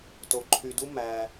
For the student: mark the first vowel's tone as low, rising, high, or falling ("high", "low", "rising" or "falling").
low